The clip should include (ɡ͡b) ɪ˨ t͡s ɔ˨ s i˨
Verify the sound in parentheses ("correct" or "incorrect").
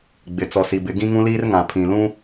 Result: correct